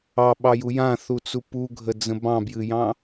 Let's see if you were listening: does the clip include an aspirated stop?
no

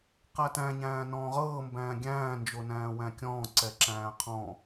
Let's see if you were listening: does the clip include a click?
yes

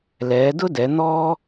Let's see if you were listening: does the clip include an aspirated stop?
no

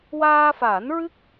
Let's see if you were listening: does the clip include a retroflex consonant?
no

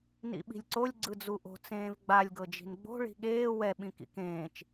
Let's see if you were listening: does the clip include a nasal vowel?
yes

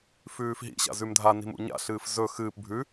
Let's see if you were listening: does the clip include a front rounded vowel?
no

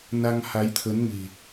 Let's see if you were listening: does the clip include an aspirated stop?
yes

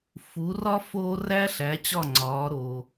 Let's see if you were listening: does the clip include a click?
yes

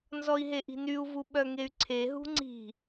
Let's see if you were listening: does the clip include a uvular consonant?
no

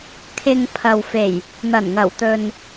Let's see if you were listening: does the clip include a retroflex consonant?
no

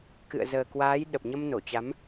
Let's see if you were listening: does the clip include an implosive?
yes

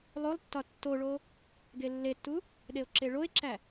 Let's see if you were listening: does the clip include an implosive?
yes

